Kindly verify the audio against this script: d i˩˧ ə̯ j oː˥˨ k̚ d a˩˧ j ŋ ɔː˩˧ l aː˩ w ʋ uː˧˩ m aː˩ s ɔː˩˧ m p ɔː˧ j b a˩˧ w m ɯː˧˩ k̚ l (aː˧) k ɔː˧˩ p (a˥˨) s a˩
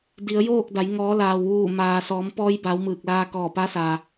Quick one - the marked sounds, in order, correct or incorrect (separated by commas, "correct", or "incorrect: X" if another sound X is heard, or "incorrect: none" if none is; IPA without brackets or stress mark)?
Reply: correct, incorrect: a˧˥